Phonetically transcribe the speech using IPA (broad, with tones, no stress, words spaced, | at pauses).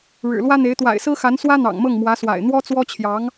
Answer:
ɻɻ̩˨˩lwä˥n̪e˧˥ɪ̯ t̪wa̰˨˩ɪ̯sɹ̩˥xa˧˥n swä˥n̪ɑ̰˨˩ŋmɤ˥˩ŋ mwä˧˥swa̰˨˩ɪ̯ n̪wɔ˥t͡swɔ˥t͡ɕʰjɑ˧˥ŋ